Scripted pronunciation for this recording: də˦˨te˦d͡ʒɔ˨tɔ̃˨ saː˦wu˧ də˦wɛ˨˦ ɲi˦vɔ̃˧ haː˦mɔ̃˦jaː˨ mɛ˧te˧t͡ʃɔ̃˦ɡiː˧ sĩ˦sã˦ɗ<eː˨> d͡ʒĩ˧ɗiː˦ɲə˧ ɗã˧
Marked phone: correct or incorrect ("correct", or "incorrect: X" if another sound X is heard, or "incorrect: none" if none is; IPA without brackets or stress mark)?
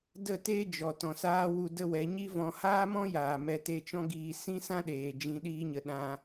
correct